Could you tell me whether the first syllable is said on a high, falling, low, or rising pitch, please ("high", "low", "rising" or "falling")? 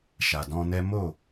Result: low